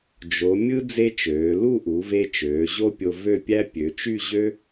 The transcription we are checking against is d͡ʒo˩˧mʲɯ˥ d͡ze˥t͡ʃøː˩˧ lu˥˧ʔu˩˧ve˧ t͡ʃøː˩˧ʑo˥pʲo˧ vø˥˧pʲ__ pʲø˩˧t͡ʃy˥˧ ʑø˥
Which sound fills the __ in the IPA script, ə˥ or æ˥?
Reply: æ˥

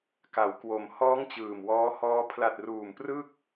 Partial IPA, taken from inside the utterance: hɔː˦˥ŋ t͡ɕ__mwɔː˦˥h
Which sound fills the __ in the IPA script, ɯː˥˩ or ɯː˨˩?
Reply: ɯː˨˩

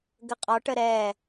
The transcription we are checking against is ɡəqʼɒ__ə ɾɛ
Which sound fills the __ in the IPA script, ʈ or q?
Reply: ʈ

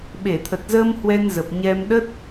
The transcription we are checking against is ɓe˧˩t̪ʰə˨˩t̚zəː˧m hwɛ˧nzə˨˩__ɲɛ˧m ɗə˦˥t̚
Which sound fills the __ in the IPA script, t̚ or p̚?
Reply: p̚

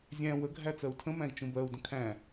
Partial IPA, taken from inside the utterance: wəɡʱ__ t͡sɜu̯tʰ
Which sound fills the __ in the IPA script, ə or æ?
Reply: æ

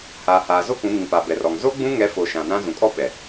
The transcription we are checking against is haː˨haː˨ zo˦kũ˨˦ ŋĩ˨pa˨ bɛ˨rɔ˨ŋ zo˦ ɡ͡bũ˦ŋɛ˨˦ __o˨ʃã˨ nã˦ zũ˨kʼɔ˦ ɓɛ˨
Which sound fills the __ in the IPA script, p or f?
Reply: f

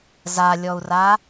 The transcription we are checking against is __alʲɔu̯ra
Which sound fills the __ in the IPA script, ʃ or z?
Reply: z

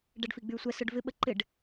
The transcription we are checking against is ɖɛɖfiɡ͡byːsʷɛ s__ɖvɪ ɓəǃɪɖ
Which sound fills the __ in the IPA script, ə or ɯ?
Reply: ɯ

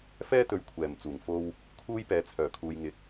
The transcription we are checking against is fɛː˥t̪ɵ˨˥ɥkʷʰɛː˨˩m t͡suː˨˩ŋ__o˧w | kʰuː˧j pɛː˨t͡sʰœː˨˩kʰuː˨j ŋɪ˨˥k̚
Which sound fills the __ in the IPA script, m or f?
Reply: f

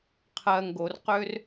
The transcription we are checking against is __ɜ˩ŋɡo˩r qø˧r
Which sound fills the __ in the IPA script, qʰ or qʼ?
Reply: qʰ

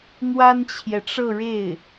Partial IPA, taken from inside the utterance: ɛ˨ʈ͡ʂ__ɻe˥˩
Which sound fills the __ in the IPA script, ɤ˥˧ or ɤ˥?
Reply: ɤ˥˧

